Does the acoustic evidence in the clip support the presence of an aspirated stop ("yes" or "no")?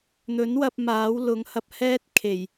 yes